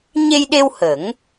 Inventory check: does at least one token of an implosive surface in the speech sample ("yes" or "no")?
yes